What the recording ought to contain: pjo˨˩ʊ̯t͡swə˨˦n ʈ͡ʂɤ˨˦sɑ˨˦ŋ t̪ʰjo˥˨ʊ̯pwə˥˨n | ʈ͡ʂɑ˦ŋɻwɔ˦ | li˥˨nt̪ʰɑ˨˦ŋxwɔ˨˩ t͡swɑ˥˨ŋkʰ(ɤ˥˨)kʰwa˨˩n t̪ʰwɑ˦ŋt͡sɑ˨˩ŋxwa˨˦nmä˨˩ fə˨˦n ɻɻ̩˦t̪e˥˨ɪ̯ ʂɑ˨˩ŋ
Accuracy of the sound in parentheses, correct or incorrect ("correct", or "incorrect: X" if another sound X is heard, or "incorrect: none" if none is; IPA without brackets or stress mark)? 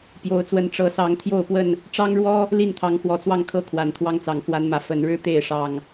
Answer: correct